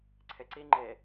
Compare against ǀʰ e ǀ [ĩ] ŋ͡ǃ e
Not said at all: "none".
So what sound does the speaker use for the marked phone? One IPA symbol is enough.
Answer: i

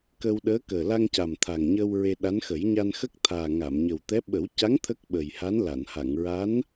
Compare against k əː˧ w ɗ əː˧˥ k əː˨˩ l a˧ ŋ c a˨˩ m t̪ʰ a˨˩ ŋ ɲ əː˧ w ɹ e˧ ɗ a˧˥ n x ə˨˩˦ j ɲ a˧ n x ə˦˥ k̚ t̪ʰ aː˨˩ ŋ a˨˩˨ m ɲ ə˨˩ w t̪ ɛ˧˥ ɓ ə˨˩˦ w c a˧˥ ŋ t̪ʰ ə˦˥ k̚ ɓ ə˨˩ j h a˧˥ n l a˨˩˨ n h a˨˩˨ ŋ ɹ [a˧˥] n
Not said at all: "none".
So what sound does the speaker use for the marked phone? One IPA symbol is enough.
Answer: a˧˥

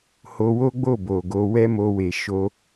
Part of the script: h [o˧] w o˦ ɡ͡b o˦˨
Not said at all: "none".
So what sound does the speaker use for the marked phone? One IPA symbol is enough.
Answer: o˧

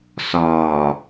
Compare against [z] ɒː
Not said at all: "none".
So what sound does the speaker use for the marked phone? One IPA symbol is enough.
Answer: s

